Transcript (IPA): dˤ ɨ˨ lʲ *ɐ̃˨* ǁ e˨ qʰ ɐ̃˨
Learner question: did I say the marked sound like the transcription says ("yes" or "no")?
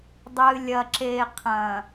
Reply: no